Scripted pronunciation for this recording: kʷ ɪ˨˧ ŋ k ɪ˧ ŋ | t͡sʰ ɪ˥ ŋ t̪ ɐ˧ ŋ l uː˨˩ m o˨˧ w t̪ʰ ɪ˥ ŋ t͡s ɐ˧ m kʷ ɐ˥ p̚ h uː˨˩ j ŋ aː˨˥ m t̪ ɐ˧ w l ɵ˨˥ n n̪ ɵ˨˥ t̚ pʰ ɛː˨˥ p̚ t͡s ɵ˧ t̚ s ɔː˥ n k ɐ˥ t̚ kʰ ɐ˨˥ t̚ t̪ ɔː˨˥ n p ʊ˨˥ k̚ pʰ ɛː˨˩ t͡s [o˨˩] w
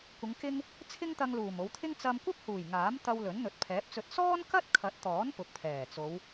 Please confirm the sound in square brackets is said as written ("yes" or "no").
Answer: no